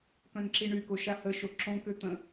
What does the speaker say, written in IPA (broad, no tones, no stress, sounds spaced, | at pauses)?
k œ̃ n ǁ i ɳ y k o ʃ a h ə ʃ o ǁ õ k ø t̪ ə̃